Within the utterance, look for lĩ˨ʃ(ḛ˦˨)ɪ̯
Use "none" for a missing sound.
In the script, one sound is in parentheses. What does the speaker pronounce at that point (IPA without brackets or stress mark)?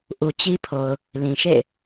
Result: ḛ˦˨